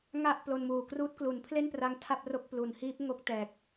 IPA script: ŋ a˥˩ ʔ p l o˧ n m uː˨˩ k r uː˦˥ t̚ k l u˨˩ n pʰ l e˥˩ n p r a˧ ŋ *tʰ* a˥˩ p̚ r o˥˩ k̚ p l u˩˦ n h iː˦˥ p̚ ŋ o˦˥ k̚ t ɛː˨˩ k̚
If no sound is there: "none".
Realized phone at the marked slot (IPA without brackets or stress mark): tʰ